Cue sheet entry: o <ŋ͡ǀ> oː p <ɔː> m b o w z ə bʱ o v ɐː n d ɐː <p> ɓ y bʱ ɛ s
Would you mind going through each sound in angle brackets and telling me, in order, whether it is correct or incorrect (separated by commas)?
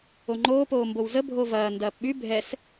incorrect, incorrect, correct